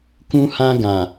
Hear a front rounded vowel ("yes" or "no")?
no